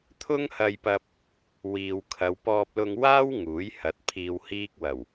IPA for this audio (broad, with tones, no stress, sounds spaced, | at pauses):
t̪ʰ ʊ˥ ŋ h ɐ˧ j p ɐ˧ p̚ | w iː˨ w kʰ ɐ˨˧ w p ɔː˧ p̚ l ʊ˧ ŋ w aː˥ w ŋ uː˨˥ j h ɐ˨˥ t̚ pʰ iː˧ w h iː˥ k̚ w ɐ˨˩ w